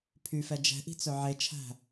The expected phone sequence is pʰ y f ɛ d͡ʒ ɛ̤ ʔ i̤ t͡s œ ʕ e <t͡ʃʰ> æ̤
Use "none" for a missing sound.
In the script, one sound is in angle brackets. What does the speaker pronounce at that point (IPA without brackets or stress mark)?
t͡ʃʰ